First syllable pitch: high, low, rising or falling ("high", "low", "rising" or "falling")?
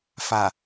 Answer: low